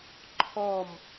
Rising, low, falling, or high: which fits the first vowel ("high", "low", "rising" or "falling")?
falling